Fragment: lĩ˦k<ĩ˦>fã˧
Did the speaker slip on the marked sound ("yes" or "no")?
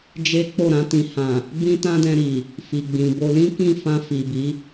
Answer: yes